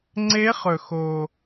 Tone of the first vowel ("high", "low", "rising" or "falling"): rising